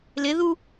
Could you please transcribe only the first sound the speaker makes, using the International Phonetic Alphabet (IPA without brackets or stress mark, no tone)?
l